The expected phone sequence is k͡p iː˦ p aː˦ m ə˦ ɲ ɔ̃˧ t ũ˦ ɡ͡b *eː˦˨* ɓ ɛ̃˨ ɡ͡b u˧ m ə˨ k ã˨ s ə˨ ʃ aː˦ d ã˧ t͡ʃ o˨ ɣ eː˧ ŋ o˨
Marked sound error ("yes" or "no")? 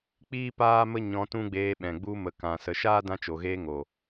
yes